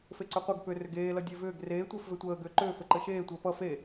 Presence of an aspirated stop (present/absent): absent